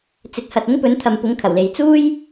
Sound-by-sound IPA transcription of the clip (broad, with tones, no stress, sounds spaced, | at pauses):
t͡s ɪ˨ k̚ h ɐ˨ t̚ ʊ˥ ŋ p ɵ˨˥ n t̪ʰ ɐ˨ m p ʊ˨˥ ŋ kʰ ɐ˨˩ w l e˨ j t͡s uː˥ j